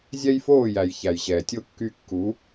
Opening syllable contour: high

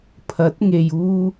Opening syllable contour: rising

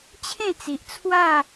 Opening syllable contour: falling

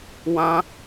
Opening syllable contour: high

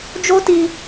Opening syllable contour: high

